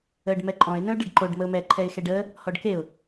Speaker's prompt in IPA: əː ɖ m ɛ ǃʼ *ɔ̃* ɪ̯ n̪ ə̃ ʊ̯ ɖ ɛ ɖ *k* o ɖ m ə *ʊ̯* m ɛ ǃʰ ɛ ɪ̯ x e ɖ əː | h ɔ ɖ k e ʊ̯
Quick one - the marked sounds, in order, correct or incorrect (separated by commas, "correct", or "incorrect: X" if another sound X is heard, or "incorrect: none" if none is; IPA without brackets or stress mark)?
correct, incorrect: ǃ, correct